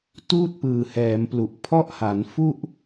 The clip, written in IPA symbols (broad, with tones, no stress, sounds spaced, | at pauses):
t uː˥˩ t̚ p ɯː˨˩ h ɛː˩˦ m p l u˨˩ ʔ pʰ ɔ˥˩ ʔ h a˩˦ n f u˥˩ ʔ